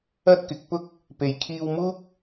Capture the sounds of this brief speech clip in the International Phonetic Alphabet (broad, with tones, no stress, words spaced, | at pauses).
ɐ˥t̚kɪ˨˥k̚pʊ˥k̚ | pe˨jkʰiː˧w muː˥k̚